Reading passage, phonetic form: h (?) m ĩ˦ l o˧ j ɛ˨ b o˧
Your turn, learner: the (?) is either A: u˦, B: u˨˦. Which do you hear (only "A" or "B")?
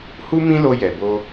A